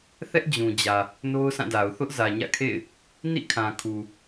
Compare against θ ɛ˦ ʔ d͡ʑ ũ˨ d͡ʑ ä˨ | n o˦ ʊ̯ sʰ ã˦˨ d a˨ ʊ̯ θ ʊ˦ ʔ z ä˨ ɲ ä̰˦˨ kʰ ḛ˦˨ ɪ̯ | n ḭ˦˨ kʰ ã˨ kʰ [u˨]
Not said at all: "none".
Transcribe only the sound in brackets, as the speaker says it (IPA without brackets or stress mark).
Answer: u˨